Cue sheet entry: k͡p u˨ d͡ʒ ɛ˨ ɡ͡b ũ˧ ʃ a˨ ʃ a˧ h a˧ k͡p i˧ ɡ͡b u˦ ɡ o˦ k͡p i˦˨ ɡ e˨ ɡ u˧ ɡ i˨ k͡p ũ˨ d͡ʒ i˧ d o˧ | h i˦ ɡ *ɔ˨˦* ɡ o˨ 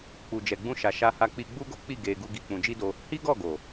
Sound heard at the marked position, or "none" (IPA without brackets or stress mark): ɔ˦˨